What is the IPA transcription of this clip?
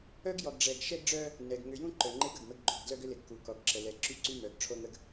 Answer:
œ˦ ɡ j ɔ˨ ɡ ɖ͡ʐ ɛ˨ ɡ ʃ ɛ˦ ɡ ɖ͡ʐ œ˦ | n ɛ˨ ɡ ŋ ʏ˨ j ũ˦ ǃ œ˨ ŋ͡ǃ e˦ ɡ ə˨ ɡ m ə˦ ɡ ɡ͡ǃ o˨ ɡ d l œ˦ ɡ ʏ˦ l ɪ˨ ɡ k u˨ k ɔ˨ ɡ ǁ ə˨ l ɛ˨ ǁ y˦ ǀ y˦ m œ˨ ɡ ʈ͡ʂʰ o˦ ŋ ə˦ ɡ

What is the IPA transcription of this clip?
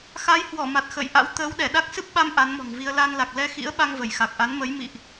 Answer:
x a˨˦ j h w ɔ˧˩ m a˨˩ t̚ x ə̰ː˧˨ j ʔ a̰˧˥ w t̪ əː˨˦ w ɗ ɛ˧˩ ɗ a˦˥ k̚ s ɨ˦˥ p̚ ɓ a˧ m ʔ a˨˦ n m ɔ̤˨˩ ŋ v i˧ ə̯ l a˧ n l a˨˩ k̚ l ɛ˧ x ḭ˧˥ ə̯ ɓ a˧ ŋ v ə˧˩ j x a˨˩ k̚ ʔ a˨˦ n m ə˨˦ j m ḭ˧˨ ʔ

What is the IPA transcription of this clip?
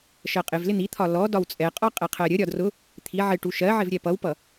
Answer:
ʃ ɜ qʼ ɪ v l ɪ n̪ i t̪ʰ ɒ l ɔ d ɒ w t͡sʼ ɛ qʼ ɒ qʼ ɛ qʰ ɜ ɾʲ ə ɾʲ ɒ d r ʊ | t̪ʰ i ʕ ɪ ʈ u ʃ ɜ ʕ ɪ v ɾʲ ɛ p ʌ w p ʌ

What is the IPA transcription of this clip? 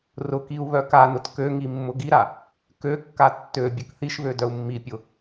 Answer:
r ʊ k i u̯ β œ k a n ʊ t k ø ŋ i mː ʊ ɡ i ɾ a | k ø kː a tː ø bʲ ʊ k θ i ʃ β ø d œ u̯ mː i pʲ ʊ

